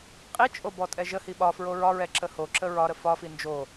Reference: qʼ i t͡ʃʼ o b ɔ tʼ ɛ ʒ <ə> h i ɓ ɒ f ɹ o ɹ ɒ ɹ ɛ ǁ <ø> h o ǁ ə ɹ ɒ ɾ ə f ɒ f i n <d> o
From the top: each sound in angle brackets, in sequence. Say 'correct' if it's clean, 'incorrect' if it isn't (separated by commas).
correct, incorrect, incorrect